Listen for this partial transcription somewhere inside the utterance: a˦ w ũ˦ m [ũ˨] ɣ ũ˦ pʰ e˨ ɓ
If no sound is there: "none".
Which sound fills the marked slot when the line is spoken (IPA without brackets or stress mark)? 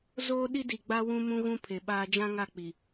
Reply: ũ˦